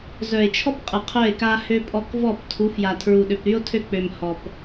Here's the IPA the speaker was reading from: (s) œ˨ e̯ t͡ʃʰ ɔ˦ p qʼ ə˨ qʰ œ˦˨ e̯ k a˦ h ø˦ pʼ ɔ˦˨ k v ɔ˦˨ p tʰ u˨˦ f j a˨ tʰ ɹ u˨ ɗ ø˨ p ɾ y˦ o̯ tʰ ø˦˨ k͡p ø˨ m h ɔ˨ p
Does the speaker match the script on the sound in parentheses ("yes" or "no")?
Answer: no